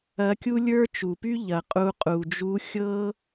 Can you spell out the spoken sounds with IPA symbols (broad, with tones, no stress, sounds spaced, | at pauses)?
ɐ˧˥ kʲ u˥ lʲ ə˞˥ t͡ʃ u˩ p y˥ ʎ ɐ˩ qʼ u˧ qʼ u˩ d͡ʒ u˧˥ xʲ ɤ˥